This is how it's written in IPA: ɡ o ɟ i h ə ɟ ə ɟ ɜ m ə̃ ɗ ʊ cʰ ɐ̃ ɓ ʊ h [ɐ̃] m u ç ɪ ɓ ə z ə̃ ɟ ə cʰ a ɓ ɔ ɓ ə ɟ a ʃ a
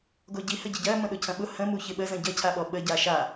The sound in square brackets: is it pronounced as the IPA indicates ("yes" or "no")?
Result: no